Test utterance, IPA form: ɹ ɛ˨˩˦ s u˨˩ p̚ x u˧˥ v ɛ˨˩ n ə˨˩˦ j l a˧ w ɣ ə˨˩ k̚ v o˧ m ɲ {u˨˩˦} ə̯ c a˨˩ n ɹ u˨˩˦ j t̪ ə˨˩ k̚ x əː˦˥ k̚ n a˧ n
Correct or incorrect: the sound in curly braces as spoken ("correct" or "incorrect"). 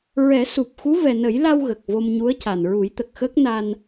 incorrect